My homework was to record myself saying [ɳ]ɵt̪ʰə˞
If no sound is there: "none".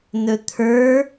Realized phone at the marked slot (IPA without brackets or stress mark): n